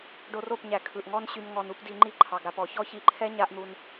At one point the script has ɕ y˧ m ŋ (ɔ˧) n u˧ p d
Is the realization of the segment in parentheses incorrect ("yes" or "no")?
no